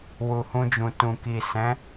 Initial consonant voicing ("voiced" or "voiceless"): voiced